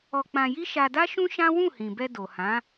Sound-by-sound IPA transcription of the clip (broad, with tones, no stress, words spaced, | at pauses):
ɔ˧k͡pã˧ji˦ ʃa˧da˦ʃũ˦ ʃã˦ wũ˦˨hĩ˨bɛ˧ do˨hã˨˦